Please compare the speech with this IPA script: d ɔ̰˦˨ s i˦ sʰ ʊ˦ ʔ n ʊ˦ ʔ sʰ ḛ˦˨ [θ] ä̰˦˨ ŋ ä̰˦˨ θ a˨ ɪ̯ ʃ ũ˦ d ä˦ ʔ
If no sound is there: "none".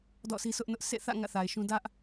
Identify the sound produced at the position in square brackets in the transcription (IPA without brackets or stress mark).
θ